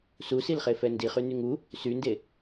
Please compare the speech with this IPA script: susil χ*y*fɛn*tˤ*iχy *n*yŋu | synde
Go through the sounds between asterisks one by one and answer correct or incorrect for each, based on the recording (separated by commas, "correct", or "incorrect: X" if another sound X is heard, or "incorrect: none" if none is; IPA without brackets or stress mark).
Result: incorrect: e, incorrect: d, correct